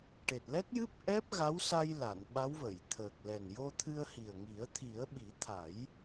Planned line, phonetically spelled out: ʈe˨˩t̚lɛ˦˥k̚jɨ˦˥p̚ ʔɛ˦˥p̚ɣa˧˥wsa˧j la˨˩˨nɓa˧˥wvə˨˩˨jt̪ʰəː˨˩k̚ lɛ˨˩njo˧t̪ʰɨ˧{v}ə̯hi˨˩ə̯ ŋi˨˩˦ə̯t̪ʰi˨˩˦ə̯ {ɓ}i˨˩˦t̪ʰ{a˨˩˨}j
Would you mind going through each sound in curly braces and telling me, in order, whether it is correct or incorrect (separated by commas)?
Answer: incorrect, correct, incorrect